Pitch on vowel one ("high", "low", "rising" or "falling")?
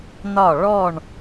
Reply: falling